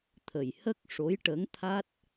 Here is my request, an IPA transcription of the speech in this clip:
t̪ʰ ə˨˩ j h ə˦˥ k̚ ʂ o˧˥ j ʈ ə˧˥ ŋ t̪ʰ a˦˥ t̚

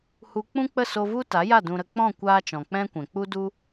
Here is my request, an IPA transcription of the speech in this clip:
h u˧ k͡p ũ˦ k͡p ə˦˨ s o˧ v u˦ t a˨˦ j a˦˨ d ũ˧ ɾ ə˧ k͡p ɔ̃˦˨ kʷ aː˧ t͡ʃ ɔ̃˨ k͡p ɛ̃˦ kʷ ɛ̃˨ k͡p u˦ d u˦

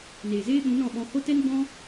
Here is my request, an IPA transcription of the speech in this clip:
n eː˨ z eː˦ ɓ ũ˨˦ n ɔ̃˦˨ ɓ ɔ̃˧ h o˦ t ɛ˦ n ɡ͡b ɔ̃˦

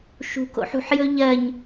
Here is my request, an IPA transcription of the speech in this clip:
ʃ ṳ k o̰ ħ ṳ ħ j ɵ ʎ ɜ ɲ

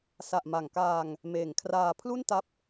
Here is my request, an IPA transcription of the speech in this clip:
s a˨˩ ʔ m a˨˩ ŋ k aː˧ ŋ | m eː˨˩ ŋ kʰ r aː˧ pʰ l u˥˩ n t a˦˥ p̚

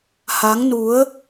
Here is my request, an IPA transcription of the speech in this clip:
h a˨˦ ŋ n u˨˦ ə̯

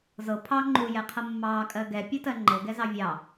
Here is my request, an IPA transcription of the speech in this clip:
z ɤ pʰ ɑ ŋ͡ǃ u j ɛ qʰ ɤ mː ɑ kʼ ɜ ɡ ɛ pʲ ɤ t ɜ ŋ͡ǃ ɤ ɡ ɛ z ɑ vʲ ɑ

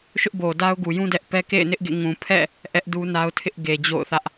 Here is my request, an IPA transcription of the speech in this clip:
ʃ ʊ˦ ʔ b o˨ d a˦ ʊ̯ ɡ u˨ j ũ˦ d ɛ˦ ʔ p ɛ˦ k ḛ˦˨ ɪ̯ n ɪ˦ ʔ ɡ ḛ˦˨ ŋ ũ˨ pʰ ɛ̰˦˨ | ʔ ɛ˦ ʔ d u˦ n a˦ ʊ̯ tʰ ɪ˦ ʔ ɡ e˨ d͡ʑ o̰˦˨ ʊ̯ θ ä˦ ʔ

